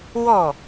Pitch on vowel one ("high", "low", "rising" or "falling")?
falling